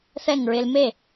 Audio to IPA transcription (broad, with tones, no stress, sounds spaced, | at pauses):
θ ɛ˥˩ ŋ ɹ ɪ˧ l m e˥˩